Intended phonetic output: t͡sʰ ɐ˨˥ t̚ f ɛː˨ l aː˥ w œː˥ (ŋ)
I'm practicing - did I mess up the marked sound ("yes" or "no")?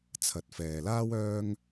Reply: no